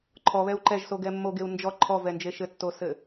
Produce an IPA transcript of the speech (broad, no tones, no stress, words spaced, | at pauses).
ǃʰɔβɛu̯ ǃɛʒsoɡɛ mːoɡeu̯ nd͡ʒɔ ǃʰɔvɛnd͡ʒe ʃɘtːosɘ